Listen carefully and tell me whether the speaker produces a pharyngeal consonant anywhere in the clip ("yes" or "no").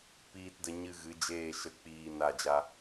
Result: no